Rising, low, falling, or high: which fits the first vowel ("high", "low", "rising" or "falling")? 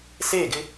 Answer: falling